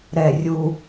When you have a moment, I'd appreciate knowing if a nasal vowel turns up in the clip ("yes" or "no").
no